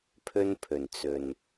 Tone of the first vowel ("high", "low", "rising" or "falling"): high